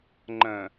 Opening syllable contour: low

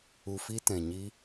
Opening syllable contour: low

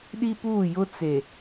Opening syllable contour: high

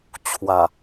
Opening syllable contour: low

